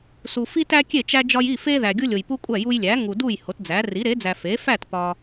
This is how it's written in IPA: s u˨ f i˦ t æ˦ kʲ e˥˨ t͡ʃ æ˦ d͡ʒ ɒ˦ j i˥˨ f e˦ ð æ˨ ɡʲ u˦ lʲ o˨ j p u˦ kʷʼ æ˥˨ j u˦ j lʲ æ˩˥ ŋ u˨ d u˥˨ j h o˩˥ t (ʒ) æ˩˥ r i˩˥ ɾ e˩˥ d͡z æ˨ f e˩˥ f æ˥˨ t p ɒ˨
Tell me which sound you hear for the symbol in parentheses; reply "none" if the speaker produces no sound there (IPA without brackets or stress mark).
d͡z